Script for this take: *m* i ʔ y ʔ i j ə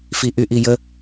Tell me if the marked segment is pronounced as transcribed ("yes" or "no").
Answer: no